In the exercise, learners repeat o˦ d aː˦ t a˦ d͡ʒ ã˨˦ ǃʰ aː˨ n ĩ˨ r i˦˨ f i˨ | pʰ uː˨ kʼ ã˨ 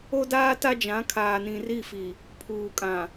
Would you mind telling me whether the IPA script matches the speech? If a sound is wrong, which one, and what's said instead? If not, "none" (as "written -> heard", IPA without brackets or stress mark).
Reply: ǃʰ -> kʰ